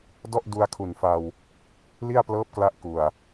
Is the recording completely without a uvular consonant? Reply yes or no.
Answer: yes